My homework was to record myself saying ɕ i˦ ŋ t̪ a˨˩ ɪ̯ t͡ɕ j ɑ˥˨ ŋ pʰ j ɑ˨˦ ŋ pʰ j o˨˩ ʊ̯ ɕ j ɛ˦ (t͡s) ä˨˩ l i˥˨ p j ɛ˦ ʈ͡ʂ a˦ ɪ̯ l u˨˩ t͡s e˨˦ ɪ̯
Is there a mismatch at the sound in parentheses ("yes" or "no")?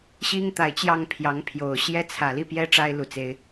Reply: yes